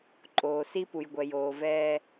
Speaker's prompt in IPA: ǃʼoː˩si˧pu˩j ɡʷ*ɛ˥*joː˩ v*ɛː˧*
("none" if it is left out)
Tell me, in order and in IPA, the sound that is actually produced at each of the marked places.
ɛ˩, ɛː˧

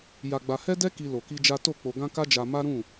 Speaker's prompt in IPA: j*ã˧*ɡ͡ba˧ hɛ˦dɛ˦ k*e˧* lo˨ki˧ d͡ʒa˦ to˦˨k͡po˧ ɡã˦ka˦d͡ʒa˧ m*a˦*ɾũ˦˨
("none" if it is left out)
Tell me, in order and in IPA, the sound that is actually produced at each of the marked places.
a˧, i˧, a˦

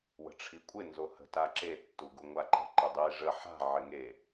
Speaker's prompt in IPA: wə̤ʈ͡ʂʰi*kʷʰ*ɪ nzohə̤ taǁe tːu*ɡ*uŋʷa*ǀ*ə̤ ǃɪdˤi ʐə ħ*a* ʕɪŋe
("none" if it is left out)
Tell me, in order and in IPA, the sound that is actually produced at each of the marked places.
kʷʼ, ɡ, ǃ, a̤

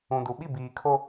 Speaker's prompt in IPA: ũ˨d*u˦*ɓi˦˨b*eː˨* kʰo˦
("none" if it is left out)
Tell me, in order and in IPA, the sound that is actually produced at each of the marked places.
u˨˦, iː˨

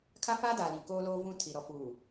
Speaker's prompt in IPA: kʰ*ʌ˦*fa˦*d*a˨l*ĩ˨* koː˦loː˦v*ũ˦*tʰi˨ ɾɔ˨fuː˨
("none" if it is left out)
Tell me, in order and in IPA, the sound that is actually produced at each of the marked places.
a˦, d, ĩ˨, ũ˦

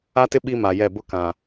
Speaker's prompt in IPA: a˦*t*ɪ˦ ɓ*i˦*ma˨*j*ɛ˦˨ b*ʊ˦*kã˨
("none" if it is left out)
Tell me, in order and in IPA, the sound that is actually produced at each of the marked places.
t, i˦, j, ʊ˦

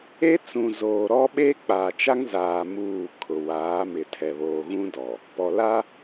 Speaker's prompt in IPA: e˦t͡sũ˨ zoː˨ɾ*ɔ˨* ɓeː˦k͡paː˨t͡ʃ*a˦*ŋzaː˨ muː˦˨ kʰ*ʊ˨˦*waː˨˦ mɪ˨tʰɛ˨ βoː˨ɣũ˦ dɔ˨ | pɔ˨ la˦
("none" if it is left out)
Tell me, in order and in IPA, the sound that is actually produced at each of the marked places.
ɔ˦, a˦, ʊ˨

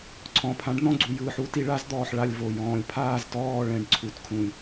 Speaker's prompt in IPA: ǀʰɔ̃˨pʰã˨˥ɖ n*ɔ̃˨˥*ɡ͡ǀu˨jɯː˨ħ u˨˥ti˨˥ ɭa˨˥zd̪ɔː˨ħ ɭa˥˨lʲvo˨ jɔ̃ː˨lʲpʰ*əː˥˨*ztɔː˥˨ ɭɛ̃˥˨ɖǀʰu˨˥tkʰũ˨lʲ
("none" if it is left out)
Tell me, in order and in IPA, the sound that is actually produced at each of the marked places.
ɔ̃˥˨, aː˥˨

